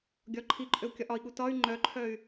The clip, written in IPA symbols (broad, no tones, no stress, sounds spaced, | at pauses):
ɡʲ ɒ ǃʰ i ǃʼ ø u̯ kʲ ɒ ʔ ɒ i̯ ɠ u t ɒ y̯ ŋ͡ǃ œ ǃʰ œ y̯